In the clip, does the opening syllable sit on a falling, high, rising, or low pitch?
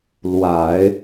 low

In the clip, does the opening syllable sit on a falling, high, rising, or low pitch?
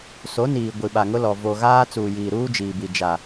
rising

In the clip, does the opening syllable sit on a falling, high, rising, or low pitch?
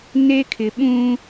high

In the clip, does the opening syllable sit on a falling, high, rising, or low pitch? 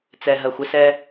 low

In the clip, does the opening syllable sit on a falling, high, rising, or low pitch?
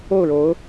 falling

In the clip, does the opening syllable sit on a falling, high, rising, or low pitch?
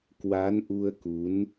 rising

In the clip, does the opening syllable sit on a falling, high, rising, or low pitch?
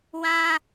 high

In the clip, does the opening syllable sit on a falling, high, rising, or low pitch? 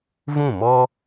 falling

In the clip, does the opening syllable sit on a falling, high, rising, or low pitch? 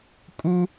high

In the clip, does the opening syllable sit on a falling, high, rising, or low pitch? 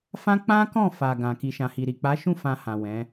high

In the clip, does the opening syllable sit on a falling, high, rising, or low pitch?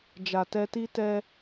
low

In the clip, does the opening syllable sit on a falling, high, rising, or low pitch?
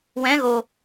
rising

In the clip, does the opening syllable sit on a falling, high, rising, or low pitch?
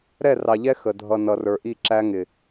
falling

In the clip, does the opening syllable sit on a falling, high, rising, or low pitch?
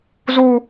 high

